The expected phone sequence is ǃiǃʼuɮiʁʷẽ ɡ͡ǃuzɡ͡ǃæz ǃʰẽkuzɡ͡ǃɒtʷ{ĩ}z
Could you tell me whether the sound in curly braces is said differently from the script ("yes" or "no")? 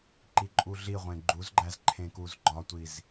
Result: yes